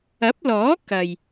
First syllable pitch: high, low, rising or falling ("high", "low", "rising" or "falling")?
rising